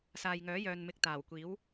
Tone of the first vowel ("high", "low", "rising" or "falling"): low